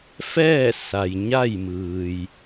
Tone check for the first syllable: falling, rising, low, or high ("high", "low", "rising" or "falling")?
falling